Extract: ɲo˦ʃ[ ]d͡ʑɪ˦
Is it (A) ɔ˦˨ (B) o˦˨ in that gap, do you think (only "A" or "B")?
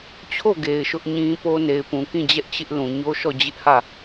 A